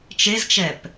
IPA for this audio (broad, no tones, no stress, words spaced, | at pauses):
t͡ʃezt͡ʃɛp